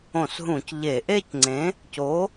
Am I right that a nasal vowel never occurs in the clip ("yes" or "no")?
no